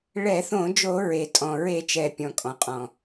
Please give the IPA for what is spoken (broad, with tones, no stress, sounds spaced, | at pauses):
ɭ ɛ˧˩˧ θ õ˧˩˧ d͡ʒ o˧˩˧ ɹ e˩ tʼ ɔ̃˩ ɹ e˧˩˧ t͡ʃ ɛ˩ pʲ ɔ̃˩ kʼ ɔ̃˩ qʼ ɔ̃˩